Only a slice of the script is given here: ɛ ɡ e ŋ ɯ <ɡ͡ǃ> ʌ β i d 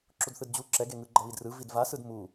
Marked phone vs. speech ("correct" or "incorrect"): correct